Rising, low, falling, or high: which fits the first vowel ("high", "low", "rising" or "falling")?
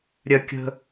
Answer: high